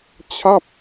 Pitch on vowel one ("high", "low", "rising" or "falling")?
falling